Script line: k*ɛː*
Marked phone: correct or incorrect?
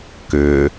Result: incorrect: ʏː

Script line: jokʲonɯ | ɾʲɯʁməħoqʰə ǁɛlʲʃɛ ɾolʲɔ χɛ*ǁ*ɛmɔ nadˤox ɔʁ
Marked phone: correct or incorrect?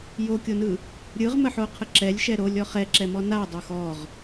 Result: correct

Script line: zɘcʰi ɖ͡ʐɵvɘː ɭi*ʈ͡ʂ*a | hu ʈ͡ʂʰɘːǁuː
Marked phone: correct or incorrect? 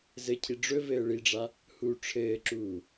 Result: incorrect: ɖ͡ʐ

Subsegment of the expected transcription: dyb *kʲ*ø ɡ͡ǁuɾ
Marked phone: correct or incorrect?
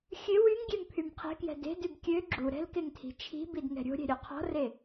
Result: correct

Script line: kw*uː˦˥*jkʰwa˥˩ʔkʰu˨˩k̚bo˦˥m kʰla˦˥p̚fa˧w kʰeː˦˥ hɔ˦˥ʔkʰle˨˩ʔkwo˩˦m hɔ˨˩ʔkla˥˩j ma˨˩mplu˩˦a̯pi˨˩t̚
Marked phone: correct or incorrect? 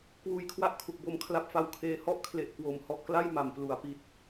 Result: correct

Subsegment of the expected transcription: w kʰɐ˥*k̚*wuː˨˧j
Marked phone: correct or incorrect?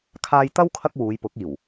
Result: correct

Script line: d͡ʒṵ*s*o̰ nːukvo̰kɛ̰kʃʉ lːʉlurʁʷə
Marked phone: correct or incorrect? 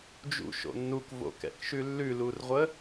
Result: incorrect: ʃ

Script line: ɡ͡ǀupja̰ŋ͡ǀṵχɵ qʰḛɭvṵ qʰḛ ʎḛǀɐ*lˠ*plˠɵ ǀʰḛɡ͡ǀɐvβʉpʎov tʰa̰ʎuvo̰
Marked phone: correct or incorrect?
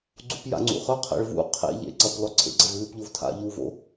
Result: incorrect: none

